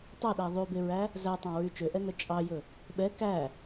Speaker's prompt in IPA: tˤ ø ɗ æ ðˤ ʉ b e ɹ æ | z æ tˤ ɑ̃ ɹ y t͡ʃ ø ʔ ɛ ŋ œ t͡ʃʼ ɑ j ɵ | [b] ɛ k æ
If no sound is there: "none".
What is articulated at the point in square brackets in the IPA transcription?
ɓ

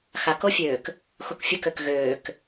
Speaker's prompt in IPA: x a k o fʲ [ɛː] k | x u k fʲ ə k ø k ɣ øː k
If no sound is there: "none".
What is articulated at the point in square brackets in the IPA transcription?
øː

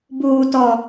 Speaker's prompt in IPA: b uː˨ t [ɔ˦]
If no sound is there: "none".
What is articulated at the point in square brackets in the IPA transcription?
ɔ˨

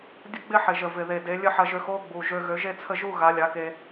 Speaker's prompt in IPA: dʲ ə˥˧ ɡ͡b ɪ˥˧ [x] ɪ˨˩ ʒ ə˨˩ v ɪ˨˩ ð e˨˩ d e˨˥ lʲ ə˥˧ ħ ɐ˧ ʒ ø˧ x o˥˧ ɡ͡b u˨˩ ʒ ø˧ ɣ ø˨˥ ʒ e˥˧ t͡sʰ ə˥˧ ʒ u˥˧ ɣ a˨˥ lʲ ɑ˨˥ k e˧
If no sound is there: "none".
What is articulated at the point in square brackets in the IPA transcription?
ħ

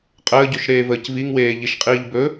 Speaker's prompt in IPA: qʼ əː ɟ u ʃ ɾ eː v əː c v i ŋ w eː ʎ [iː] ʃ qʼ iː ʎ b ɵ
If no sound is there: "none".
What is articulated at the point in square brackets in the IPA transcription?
i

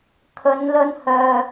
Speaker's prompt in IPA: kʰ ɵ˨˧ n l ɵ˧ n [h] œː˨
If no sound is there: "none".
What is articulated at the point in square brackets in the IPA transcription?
h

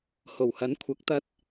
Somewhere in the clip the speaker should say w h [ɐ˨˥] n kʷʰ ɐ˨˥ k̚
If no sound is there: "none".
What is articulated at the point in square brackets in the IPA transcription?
ɐ˨˥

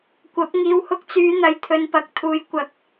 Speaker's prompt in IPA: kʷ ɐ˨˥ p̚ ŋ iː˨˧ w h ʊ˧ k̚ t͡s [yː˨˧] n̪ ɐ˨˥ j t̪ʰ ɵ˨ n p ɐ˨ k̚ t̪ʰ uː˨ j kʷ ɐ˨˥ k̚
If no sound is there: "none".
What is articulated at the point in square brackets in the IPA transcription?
yː˨˧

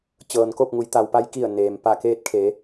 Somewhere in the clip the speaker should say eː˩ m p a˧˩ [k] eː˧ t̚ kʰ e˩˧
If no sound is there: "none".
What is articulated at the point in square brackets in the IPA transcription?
k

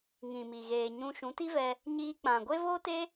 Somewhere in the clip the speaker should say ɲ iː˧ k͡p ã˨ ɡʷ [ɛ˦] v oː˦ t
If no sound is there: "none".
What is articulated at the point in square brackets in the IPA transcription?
e˦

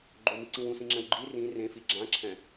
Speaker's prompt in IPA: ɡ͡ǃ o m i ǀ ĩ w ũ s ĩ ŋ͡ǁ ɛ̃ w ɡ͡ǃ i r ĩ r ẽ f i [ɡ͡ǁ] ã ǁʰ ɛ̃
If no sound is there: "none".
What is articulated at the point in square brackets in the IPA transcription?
ɡ͡ǁ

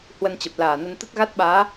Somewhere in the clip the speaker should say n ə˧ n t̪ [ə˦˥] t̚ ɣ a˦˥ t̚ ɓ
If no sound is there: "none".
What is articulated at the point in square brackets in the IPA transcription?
ə˦˥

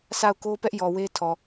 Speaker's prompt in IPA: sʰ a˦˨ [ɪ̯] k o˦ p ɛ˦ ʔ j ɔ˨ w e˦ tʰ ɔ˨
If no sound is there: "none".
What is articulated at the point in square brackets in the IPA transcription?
ʊ̯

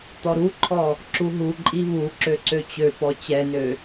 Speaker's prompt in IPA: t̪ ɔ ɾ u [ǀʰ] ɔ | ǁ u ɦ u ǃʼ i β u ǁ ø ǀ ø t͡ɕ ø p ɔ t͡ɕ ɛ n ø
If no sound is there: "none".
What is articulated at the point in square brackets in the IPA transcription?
ǃʰ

